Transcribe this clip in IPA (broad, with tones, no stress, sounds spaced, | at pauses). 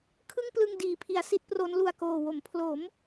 kʰ ɯ˥˩ ŋ p l ɯ˧ ŋ d iː˩˦ pʰ i˩˦ a̯ s i˦˥ t̚ p r o˦˥ n l u˨˩ a̯ k oː˨˩ w o˩˦ m pʰ l o˩˦ m